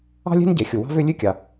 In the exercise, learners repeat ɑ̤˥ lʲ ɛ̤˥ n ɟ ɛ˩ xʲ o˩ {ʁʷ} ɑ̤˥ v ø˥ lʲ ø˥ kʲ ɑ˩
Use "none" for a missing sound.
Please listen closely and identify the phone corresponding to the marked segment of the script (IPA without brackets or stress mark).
w